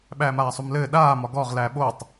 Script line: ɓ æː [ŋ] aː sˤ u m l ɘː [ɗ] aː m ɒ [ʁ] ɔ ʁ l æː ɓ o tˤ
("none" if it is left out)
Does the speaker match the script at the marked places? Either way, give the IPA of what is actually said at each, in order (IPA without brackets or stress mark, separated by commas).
m, ɗ, ɡ